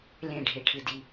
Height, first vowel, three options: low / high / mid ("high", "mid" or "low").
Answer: mid